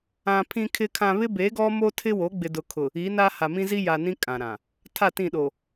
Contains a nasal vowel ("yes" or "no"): yes